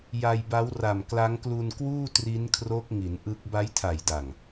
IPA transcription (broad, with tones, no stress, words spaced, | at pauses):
ja˧jba˦˥wra˨˩m kla˦˥ŋklu˧nkwuː˥˩ tri˦˥nkʰro˦˥k̚ŋi˩˦n ʔɯ˦˥k̚ ba˦˥jtʰa˨˩j da˨˩ŋ